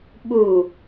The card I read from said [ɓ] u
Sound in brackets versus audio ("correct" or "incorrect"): correct